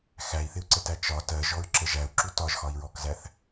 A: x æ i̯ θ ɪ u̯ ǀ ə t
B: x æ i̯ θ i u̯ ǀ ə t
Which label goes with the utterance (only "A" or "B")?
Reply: A